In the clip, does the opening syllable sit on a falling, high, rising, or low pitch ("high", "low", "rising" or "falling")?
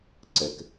low